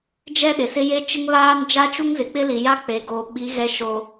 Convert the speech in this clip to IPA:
d͡ʒɛ˦ɗɪ˨sɪ˦ je˦t͡ʃɪ˦ŋβaː˦n d͡ʒa˦t͡ʃu˦ŋzɪ˨ k͡pɪ˦li˨ja˦ k͡pe˨ɡo˨ɓi˨˦ ɣɛ˦ʃo˦

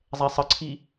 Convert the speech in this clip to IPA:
zˤɛsˤəǀʰi

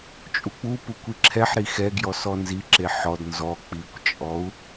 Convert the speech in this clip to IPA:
t͡ʃʼuk͡pupukʷi ǁʰɛħɾi xɛɡjɔ sɔnziǁe ħɔd nzɔ k͡pikʷt͡ʃʼɔu̯

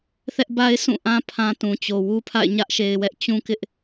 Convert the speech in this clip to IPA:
θɛ˦ʔba˦ɪ̯ sʰũ˦˨ʔã˦ pʰã˦tũ˨t͡ɕo˨ wu˦pʰa̰˦˨ɪ̯ ɲä˦ʔʃe˨ɪ̯wɛ˦ʔ t͡ɕũ˦kɪ˦ʔ

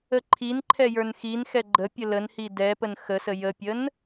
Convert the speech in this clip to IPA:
əǃʰinǃʰɛ jə˞nxinxɛ ɡ͡ǃə pʲələnhi dɛpən xəsə jəpʲən

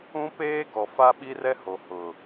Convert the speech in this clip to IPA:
ũ˦peː˦ɡɔ˨ fa˦ɓi˦ rɛ˦ho˨ hʊ˨

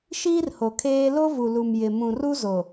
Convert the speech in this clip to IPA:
ʃiː˦rho˨ kʰeː˦ lo˦vu˨ lu˨mjɪ˨ mũ˨ru˦zo˨

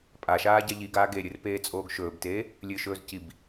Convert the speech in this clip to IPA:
pʼaʃaː ɟaʎiɡaː ɡeɾʲɨr peːt͡sʼoːɡʃɵːbteː | lʲɨʃɵːz cib

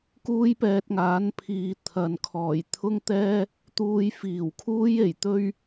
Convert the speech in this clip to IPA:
kuː˥jpɛː˧t̚ŋaː˨˥npʰiː˨ t̪ʰɐ˨nkʰɔː˨˩j t̪ʰʊ˥ŋt̪ɛː˥ | t̪uː˧j fiː˨˩wkʰuː˥je˨˩j t̪ɵ˥ɥ

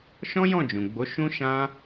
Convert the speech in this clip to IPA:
ʃɔ̃˦jɔ̃˦˨d͡ʒũ˨ɡ͡bo˨˦ ʃũ˦ʃã˦

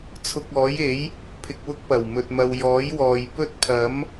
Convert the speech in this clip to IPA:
t͡sʰʊ˧k̚ɔː˨˥je˨˥j | pʰɪ˧k̚wʊ˥k̚pɐ˨˩w mɵ˨t̚mɐ˨w jɔː˨˥jwɔː˨j pɵ˥t̚ pʰɐ˨˥m

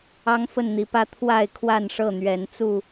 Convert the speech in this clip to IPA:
ɑ˦ŋfə˥˨nn̪i˨˦pä˦ t̪ʰwa˥˨ɪ̯ kʰwa˥˨nʂɤ˥˨n̪ɥɛ˨˦n t͡su˥˨

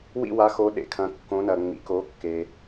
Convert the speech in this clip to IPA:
wḭ˦˨wa˨˦xo˨˦ ɗḛ˨kʰɐ̃˨˦kːõ˨˦ nɐ˨ ŋ͡mḭ˨k o˨˦kːe˨

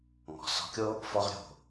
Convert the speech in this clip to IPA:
ŋɔ̤˨sɔ̤˧kʲo˦ | fɔ˦ʁ ɾʲo̤˦˨

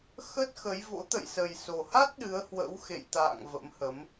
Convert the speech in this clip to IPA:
xə˦˥t̚xə˨˦jvo̰˧˥ t̪ə̰˧˨jsə˨˩jso˨˩ha˦˥t̚ ɗɨ˨˦ə̯hwə̰˧˥w xḛ˧˨jt̪a̰ː˧˨ŋ və̰˧˥mhə˨˦m

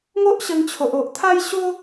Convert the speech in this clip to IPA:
ŋo˦ʔɕə˧ŋ t͡ɕʰo˨ʔo˨ʔ t̪ʰa˦jɕo˦

